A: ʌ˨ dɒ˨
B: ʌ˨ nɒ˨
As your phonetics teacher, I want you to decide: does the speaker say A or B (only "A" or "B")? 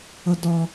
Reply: A